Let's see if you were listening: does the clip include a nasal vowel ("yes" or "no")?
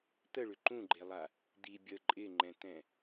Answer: yes